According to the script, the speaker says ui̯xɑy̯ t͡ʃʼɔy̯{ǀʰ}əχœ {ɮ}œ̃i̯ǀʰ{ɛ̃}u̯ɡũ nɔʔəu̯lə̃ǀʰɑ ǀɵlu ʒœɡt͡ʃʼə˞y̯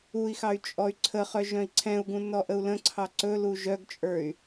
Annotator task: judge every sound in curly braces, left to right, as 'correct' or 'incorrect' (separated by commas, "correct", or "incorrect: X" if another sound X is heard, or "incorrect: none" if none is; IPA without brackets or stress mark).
correct, incorrect: ʒ, correct